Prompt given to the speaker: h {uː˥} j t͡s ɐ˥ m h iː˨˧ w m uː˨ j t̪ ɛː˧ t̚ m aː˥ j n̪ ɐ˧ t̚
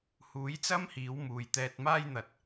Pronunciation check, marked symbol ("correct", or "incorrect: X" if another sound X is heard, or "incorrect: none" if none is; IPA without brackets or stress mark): incorrect: uː˨˥